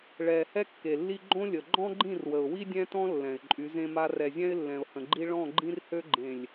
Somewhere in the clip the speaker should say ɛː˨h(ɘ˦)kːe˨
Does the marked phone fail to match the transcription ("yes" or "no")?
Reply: yes